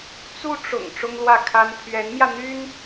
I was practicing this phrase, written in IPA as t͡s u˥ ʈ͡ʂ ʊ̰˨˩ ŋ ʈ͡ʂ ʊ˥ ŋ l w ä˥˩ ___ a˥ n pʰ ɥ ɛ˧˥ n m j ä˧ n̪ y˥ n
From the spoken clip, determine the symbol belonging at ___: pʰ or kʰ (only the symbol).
kʰ